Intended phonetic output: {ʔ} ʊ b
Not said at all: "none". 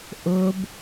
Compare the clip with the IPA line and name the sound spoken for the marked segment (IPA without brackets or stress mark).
ʔ